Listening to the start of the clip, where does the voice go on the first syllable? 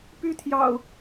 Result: high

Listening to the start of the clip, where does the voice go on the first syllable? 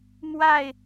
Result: falling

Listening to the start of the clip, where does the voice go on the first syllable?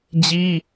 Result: high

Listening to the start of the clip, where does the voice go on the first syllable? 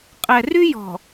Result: low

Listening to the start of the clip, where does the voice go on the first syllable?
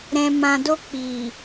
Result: low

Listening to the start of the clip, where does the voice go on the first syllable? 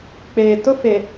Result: low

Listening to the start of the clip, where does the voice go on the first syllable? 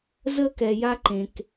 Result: high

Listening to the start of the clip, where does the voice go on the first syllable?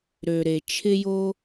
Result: low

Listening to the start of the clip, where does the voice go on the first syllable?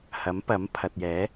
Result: rising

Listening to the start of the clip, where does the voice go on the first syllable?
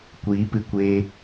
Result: rising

